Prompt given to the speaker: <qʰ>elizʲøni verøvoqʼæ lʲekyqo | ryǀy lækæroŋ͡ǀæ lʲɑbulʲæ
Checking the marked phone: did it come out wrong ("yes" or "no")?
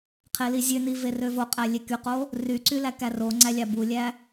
no